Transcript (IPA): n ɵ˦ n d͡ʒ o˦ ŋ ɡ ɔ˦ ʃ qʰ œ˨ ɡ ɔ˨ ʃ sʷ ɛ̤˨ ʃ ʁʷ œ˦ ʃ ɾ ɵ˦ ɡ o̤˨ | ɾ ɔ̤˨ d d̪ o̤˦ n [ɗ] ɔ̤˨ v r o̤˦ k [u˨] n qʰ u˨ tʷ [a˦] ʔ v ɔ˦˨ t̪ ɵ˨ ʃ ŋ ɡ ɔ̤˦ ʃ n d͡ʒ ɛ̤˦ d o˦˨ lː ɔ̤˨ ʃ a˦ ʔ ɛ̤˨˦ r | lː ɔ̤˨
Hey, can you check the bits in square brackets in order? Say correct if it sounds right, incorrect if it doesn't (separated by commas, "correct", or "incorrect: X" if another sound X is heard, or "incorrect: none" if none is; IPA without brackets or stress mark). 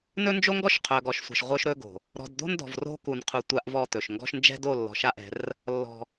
incorrect: d, correct, correct